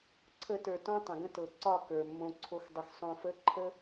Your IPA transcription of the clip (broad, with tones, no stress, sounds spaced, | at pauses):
ǀʰ ə˦ t ə˞˧ t ɔ̃˦ tˤ ə̃˨ ɡ ə̃˦ t ɤ˨ ǀ ɒ˦˨ k ə˞˨ mː õ˧ ǀʰ o˦ x dˤ ə˧ x sˤ õ˧ f ə˦ ǃʰ ə˦